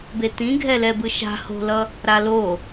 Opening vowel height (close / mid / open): mid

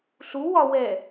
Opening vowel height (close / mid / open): close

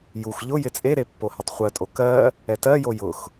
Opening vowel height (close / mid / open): close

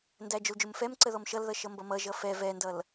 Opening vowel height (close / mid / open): open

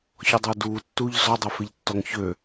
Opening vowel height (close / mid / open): mid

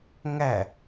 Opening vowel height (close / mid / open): open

